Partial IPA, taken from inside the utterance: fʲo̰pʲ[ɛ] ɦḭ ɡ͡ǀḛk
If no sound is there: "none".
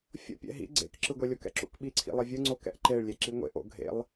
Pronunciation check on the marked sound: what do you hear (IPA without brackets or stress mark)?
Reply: ɛ̰